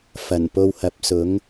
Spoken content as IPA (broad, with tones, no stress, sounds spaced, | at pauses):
f ɐ˨˩ n p o˧ w h ɐ˨˥ p̚ s ʊ˨˥ ŋ